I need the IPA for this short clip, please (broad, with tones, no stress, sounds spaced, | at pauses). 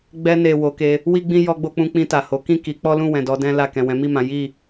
ɡ͡b ɛ˧ n e˨ w o˨˦ k e˧ | w i˦ ɡ͡b ĩ˦ j ɔ˧ ɡ͡b o˧ k͡p ũ˧ k͡p ĩ˧ t a˨ h o˨˦ k ĩ˦˨ k i˨˦ k͡p ɔ˦ l ũ˦˨ w ɛ̃˨ d ɔ˨˦ d ɛ̃˦ l a˦˨ k ɛ̃˨ w ɛ̃˨˦ m i˦˨ m ã˨˦ j i˦˨